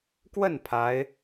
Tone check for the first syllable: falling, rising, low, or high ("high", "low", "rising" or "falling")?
falling